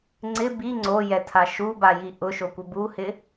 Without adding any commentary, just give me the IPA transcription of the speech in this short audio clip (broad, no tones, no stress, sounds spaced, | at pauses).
ŋ͡ǀ ɪ b i ŋ͡ǀ o j ɛ tʰ a ʃ u b a j i ʔ ʊ ʃ o kʷ ɪ b u h ɪ